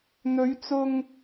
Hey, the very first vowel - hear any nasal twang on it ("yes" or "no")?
no